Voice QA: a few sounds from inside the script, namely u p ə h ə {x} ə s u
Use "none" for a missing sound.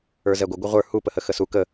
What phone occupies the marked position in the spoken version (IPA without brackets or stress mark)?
x